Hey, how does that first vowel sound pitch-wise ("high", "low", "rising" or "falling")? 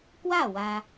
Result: falling